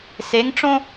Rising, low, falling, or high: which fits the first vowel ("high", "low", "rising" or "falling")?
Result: rising